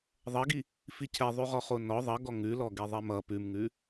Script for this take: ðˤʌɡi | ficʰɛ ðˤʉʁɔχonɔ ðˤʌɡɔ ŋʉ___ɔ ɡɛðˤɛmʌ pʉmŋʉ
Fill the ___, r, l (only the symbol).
l